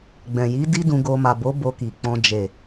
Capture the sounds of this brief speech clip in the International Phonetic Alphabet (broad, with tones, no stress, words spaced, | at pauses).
ɡ͡bɛ̃˨ji˨˦ di˦dũ˧ɡo˧ ma˨bo˨˦ bo˧ki˨k͡pɔ̃˧ d͡ʒe˨